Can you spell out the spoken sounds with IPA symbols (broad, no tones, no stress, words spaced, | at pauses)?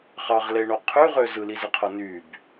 χɑʁleɳo qʰyʁø zɯlizɯqʰo nyb